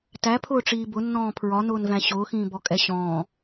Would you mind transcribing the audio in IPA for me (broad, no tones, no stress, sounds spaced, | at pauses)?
t æ pʰ ʊː ʈ͡ʂ iː b ʊ nː ɔ̃ː pʰ ɹ ɒ n ʊː n v æ̃ ɕ ʊː x ĩː b ɔ kʼ ɛ ɕ ɔ̃ː